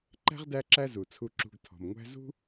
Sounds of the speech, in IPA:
ǃ æ̤˥ ʁ d æ˦ ǁ æ˦ z u˩ t͡sʰ u˨ ǁ ṳ˨ ɡ tʰ ɔ̤˩ m ŋʷ æ̤˦ z ṳ˥

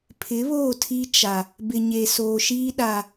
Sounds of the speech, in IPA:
pʰ ɪ˨˦ β oː˦˨ tʰ i˦ t͡ʃ a˨ | b ɪ˨ ɲ e˨ s oː˨ ʃ iː˦ ɗ a˨

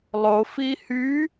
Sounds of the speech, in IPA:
lˠ o f i h y

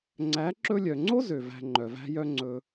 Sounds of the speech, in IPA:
ŋ͡ǀ æ˨˦ ǁ ɵ˧ lʲ œ˨ ŋ͡ǀ o˦ z ø˨ v æ̤˧ ŋ͡ǃ œ˨ v æ̤˦ j œ˦ ŋ͡ǀ ɵ˧

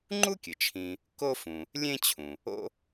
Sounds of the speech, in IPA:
ŋ͡ǃ u˥ kʲ ɨ˩ t͡ʃʰ ĩ˨ | k o˦ f ũ˩ | lʲ ẽ˦ t͡ɕʰ ũ˩ | o̰˦

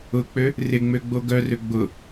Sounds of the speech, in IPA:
ʊ k͡p ø | r ɪ ŋ͡m ø ɡ͡b o ɡ œ r ø ɡ͡b ʊ

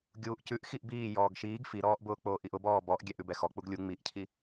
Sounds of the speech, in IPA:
ɡʲ uː ʔ c ʉ ʔ x i ʔ b iː j ɔː ɡ ʃ iː ɡ f i ɾ ɔː ʔ b ʊː k͡p oː ʔ i ʔ ʊ b ɔː b ɔ ʔ ɡʲ ɛ ʔ ʉ b ɛ x ɔ k͡p u ɡ lʲ u ŋ͡m i ʔ cʰ i

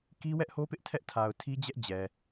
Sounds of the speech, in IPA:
k i˦ w ɛ˦ ʔ h o˦ p ɪ˦ ʔ tʰ ɛ˦ ʔ tʰ a˨ ʊ̯ tʰ i˦ d͡ʑ ɛ˦ ʔ d͡ʑ ɛ˨

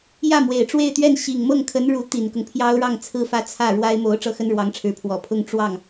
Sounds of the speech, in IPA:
j ä˥˩ m w e˨˩ ɪ̯ ʈ͡ʂ w e˥˧ ɪ̯ t̪ ɥ ɛ˥˩ n ɕ i˨˩ ŋ m ɤ˥˩ ŋ kʰ ə˧˥ n ɻ u˧˥ t̪ i˨˩ n k ʊ˦ ŋ pʰ j ɑ˥ ʊ̯ ɻ ɑ˥˧ ŋ t͡sʰ ɹ̩˥˧ f ä˥˧ t͡sʰ ä˥˩ ɻ w a˥ ɪ̯ m o˧˥ ʊ̯ ʈ͡ʂ ɤ˥˩ x ə˥ n ɻ w ɑ˧˥ ŋ ʈ͡ʂʰ ɻ̩˧˥ pʰ w ɔ˨˩ pʰ ʊ˥ ŋ ʈ͡ʂ w ɑ˥˩ ŋ

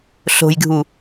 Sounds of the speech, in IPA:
ɬ o̤ j ɡʱ u

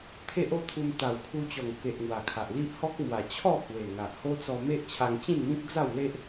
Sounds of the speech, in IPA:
t̪ʰ e˦ ʔ o˦ t̪ʰ u˧ m t̪ a˨˩ w kʰ u˧ t͡ɕ ɔ˨˩ ŋ k e˨ ʔ ŋ w a˨˩ kʰ a˨ ʔ l i˦ ʔ h ɔ˦ k̚ m w a˨˩ t͡ɕʰ ɔ˥˧ h w e˨˩ ŋ a˨ ʔ h o˦ t͡s ɔ˧ m e˦ ʔ t͡ɕʰ a˧ ŋ t͡ɕ ĩ˥˧ n m ĩ˦ k̚ d͡z a˥˧ w l e˦ ʔ

